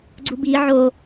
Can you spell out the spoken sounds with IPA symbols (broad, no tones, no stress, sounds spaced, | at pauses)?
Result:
ɡ͡ǀ u b i ʕ o